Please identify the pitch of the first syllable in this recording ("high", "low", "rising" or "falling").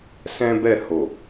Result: high